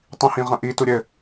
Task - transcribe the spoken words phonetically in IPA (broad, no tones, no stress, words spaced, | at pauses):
tˤĩhĩʁɐ̃ʔi tuɾʲɘ